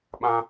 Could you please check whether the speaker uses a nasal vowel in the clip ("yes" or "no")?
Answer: yes